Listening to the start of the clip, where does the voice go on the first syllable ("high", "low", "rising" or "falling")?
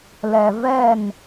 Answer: low